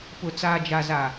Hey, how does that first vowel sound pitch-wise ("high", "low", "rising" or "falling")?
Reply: low